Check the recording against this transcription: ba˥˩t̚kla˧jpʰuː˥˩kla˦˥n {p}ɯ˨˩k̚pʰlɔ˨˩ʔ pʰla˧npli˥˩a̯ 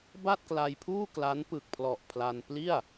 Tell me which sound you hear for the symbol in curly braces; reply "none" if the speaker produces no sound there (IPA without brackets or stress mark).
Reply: p